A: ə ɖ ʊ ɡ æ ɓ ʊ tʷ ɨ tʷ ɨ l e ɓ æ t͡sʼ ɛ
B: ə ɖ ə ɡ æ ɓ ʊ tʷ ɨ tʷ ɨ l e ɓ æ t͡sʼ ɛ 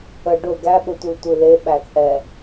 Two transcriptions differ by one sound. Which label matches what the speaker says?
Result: A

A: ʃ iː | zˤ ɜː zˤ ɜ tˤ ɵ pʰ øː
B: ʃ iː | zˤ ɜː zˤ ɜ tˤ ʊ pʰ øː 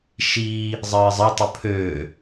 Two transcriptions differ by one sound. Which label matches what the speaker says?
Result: A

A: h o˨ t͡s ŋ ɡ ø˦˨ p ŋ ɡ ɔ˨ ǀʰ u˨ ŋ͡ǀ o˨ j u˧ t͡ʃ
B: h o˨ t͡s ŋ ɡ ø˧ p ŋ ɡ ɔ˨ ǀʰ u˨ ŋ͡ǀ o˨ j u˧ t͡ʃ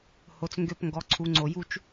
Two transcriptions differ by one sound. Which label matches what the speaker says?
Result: B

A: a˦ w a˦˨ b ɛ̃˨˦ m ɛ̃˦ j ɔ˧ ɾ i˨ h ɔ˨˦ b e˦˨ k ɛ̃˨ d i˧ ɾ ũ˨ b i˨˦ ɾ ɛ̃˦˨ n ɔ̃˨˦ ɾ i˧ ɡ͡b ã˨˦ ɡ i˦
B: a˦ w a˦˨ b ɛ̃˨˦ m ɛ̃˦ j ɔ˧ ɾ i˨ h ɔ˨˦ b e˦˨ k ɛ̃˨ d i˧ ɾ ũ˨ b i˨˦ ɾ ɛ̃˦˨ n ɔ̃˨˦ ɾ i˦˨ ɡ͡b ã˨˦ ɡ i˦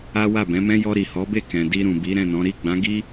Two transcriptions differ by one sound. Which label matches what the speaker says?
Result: B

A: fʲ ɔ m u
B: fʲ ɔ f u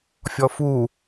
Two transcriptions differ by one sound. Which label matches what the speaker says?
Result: B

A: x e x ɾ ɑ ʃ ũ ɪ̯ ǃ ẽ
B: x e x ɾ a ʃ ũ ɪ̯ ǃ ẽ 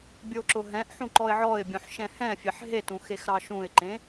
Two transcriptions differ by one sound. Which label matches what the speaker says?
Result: A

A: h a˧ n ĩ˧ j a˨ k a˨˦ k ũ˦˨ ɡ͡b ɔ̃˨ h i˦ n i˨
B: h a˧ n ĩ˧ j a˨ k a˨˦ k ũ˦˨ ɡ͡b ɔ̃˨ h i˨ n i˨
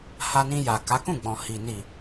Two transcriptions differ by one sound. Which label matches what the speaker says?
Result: B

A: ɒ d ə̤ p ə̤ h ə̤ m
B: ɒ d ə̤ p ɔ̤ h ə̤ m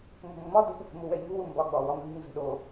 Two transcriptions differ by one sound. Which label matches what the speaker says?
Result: A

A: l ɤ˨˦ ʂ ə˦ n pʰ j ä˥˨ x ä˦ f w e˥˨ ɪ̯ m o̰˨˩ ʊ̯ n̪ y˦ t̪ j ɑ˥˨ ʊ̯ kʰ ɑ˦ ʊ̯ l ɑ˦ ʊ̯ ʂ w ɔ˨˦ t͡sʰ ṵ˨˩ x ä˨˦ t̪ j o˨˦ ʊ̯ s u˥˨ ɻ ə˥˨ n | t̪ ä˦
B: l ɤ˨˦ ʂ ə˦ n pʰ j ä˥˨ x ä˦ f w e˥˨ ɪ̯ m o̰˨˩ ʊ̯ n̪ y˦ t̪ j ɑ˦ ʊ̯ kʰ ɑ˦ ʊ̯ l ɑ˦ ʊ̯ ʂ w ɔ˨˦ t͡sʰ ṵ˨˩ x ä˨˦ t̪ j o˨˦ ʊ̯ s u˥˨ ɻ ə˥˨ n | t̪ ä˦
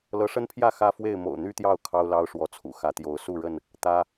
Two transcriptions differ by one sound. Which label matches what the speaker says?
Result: A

